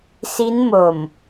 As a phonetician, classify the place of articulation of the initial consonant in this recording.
alveolar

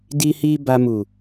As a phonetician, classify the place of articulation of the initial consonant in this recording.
alveolar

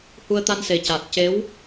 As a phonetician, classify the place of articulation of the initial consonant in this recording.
glottal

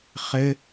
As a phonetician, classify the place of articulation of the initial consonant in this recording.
uvular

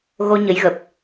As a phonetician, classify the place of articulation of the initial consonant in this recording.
velar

